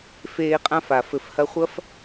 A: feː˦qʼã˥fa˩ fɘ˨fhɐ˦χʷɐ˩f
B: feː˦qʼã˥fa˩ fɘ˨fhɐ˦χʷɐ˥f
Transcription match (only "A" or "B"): B